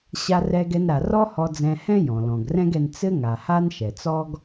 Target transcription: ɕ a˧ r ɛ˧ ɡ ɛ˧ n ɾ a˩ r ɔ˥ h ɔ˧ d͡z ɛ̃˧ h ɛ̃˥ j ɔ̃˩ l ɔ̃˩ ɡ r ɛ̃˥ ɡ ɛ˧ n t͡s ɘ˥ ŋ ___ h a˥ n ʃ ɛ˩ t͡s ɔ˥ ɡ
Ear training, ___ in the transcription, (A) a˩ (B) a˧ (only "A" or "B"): A